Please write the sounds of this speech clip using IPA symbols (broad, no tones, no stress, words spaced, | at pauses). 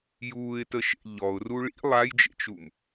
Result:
juːɪ̯təʃḛ ʎɔʊ̯ru ɭḭ lˠajd͡ʒḛt͡ʃum